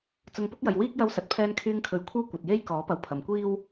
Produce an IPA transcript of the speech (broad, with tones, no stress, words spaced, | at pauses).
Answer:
t͡sʊ˧ŋ pʊ˥k̚jɐ˨j wiː˥k̚jɐ˧wsɐ˨˥t̚ pʰɛː˧nkʰyː˧ŋkʰɵ˨˥ɥ kʷʰɐ˥wkʷɐ˨t̚ je˥jkɔː˨˥pɐ˨w pʰɐ˨mkʷiː˥w